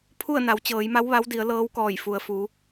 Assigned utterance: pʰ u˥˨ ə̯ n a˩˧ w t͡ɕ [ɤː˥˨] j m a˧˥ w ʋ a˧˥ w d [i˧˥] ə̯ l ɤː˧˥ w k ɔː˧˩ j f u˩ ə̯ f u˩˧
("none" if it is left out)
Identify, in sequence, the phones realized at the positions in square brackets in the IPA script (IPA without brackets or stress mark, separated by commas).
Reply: ɤː˩˧, i˩˧